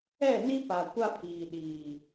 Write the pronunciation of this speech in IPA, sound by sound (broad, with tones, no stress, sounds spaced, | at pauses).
ɛ˦˨ n i˦ p a˨ kʷ a˦ pʰ iː˨ ɗ iː˨